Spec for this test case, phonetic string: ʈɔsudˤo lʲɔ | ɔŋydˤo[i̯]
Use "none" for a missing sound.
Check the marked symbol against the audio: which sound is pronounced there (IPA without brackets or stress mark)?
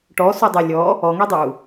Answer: u̯